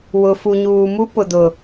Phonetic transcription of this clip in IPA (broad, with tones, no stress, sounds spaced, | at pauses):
w ʊ˨ f u˨ ɲ uː˨ m u˦ p ʊ˨ d ʊ˨